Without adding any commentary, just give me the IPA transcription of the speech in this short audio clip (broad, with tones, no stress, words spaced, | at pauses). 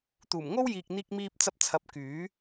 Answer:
t̪uː˨˩mŋo˥wjiː˨k̚n̪iː˧k̚ miː˧p̚t͡sɐ˧p̚ t͡sʰɐ˨˥p̚kyː˨˥